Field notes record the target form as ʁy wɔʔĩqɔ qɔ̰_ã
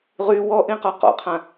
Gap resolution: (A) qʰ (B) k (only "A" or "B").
A